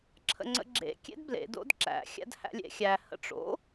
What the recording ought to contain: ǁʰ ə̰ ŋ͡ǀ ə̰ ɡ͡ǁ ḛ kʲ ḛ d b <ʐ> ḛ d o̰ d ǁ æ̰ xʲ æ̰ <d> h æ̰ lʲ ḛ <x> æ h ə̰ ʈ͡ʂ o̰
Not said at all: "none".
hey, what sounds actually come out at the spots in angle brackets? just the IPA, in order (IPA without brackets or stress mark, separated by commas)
l, d, xʲ